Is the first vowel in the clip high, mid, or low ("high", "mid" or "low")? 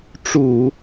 high